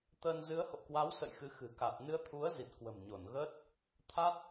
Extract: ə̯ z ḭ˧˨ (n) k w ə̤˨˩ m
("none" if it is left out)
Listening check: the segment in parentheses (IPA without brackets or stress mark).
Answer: n